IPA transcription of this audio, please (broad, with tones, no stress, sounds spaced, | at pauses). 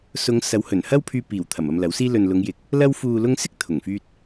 s ʊ˨˧ ŋ s ɐ˨˥ w h ɵ˨˩ n h ɐ˥ w pʰ yː˧ p iː˨˩ w t̪ʰ ɐ˨˩ m ɐ˧ m l ɐ˨˥ w s iː˥ l ɵ˨ n l ʊ˨˧ ŋ j ɪ˨ k̚ | l ɐ˧ w f uː˨ l ʊ˧ ŋ s ɪ˥ k̚ t̪ʰ ʊ˨˩ ŋ f yː˧ t̚